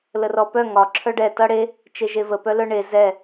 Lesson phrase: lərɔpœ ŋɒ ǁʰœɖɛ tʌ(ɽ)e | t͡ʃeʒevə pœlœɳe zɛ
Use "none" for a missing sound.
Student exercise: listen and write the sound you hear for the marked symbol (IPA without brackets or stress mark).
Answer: ɽ